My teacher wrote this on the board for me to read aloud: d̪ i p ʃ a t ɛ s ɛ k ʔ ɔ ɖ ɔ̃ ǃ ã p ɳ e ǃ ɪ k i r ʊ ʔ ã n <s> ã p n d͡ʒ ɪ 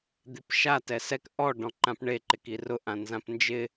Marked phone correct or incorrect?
incorrect